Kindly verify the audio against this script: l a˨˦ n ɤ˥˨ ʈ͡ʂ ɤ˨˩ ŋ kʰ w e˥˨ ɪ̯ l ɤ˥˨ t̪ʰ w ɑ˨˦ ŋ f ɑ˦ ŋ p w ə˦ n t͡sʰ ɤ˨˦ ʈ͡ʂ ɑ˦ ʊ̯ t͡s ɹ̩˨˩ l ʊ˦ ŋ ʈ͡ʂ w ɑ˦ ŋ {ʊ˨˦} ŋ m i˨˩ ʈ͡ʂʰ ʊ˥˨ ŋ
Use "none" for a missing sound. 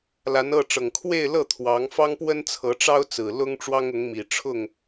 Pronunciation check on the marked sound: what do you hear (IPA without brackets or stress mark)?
ʊ˨˦